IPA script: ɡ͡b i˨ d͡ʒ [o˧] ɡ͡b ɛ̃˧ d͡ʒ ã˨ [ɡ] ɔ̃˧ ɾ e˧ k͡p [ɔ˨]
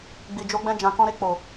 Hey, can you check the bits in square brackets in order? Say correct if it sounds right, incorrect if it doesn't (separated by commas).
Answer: correct, incorrect, incorrect